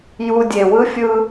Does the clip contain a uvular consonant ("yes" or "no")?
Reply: no